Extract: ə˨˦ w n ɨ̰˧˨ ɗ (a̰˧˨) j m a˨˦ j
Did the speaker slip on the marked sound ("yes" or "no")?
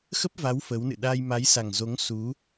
yes